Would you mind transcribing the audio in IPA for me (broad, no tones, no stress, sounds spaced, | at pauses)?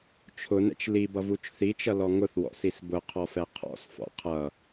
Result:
t͡ʃʰ ʊ n ɛ̰ t͡ʃ l i b ʌ v u t͡ʃ θ i t͡ʃ ʌ l ɔ ŋ ʊ θ w ɔ̰ s i s b ʊ qʰ ɔ f ɛ qʰ ɔ̰ s f ɔ̰ qʰ ʌ